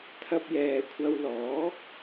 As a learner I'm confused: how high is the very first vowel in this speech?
low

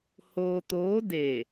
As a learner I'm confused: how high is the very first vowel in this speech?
mid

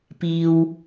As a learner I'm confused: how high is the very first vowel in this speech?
high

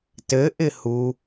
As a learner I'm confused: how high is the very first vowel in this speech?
mid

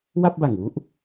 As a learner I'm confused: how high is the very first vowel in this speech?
low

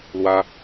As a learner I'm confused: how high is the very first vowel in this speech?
low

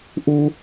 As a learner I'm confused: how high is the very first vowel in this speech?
high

